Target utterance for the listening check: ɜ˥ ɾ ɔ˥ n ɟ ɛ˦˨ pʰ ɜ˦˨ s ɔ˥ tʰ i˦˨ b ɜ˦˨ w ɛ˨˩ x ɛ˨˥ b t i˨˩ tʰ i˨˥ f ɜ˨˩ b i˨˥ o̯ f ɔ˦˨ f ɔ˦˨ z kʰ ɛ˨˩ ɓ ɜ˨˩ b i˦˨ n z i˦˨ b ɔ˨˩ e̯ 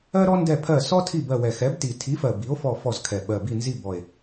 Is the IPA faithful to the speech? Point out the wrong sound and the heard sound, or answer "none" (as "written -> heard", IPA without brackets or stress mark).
ɟ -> d